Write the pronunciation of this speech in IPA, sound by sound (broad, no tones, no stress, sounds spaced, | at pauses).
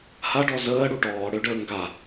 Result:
h a ɖ ɔ z əː ɽ u ʈ ɔː ɽ ø ɖ əː ŋ ɡ a